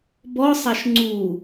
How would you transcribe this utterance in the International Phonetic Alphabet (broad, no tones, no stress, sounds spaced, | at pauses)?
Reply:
b ɔ sˤ a ʃ ŋ͡ǀ u